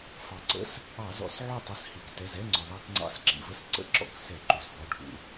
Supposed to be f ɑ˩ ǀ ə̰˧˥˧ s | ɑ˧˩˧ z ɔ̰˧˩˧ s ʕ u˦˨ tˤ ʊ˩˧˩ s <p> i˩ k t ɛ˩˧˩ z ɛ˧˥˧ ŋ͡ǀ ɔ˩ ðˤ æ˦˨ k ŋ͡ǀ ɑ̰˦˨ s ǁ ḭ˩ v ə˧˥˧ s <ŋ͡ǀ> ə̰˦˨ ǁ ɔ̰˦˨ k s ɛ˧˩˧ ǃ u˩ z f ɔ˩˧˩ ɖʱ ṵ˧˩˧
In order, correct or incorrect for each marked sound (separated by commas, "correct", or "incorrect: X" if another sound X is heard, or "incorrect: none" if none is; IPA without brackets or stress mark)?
incorrect: h, incorrect: ǀ